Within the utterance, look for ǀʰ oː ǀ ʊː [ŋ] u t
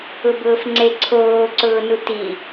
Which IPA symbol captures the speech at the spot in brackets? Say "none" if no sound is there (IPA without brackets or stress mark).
n